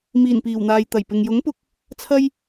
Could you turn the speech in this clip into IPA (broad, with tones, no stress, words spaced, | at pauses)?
miː˨˩npiː˨˩wn̪aː˨j t̪ɐ˨˩j pɪ˨ŋjʊ˨˥ŋpʊ˧k̚ | t͡sʰɐ˧j